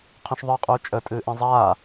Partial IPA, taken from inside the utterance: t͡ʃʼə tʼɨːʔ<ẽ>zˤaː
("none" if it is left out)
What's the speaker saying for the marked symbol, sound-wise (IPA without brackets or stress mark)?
ẽ